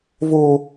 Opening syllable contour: high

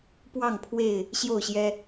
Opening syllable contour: falling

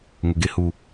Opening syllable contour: low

